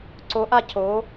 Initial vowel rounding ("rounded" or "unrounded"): rounded